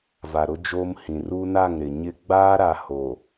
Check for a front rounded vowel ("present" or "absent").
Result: absent